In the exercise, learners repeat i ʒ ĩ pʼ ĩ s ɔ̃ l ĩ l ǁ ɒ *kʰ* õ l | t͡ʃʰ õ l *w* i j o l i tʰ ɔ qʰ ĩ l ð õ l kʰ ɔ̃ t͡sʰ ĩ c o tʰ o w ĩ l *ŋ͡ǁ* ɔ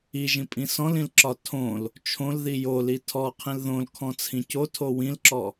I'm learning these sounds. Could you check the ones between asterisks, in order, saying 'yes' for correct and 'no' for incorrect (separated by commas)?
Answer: no, no, no